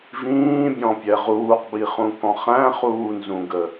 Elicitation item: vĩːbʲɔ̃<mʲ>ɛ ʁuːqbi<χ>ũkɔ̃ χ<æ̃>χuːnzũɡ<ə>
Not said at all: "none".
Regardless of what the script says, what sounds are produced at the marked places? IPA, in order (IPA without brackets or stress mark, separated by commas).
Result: pʲ, χ, æ̃, ə